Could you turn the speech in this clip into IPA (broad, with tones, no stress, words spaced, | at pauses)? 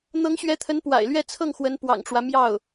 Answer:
n̪ɤ˧˥ŋɕɥɛ˧˥t̪ʰə˧˥n pwa̰˨˩ɪ̯lɥɛ˥˧ t͡sʰɤ˥˩ŋ xwə˧˥npwɑ̰˨˩ŋʈ͡ʂwä˦ mjɑ˥˩ʊ̯